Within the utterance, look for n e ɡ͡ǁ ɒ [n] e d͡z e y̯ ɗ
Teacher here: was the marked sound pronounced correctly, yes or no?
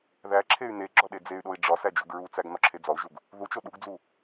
no